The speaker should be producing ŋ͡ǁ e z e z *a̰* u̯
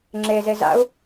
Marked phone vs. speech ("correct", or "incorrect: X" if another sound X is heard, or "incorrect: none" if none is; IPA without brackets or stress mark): correct